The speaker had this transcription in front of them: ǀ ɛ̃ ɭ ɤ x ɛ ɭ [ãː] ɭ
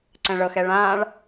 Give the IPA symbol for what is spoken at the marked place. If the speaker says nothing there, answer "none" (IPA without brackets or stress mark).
ãː